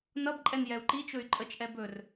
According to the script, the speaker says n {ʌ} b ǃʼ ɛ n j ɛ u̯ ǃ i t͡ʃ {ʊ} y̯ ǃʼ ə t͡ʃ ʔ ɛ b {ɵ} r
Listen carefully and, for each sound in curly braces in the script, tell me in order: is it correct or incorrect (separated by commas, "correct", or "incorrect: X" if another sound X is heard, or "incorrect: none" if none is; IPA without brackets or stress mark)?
correct, incorrect: ɵ, correct